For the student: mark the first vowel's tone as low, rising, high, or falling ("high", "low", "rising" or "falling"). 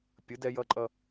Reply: rising